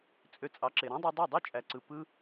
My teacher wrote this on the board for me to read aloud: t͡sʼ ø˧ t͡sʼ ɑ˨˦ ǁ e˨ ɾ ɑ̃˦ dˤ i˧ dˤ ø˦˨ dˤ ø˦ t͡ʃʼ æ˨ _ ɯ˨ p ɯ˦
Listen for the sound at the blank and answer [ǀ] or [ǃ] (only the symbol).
ǀ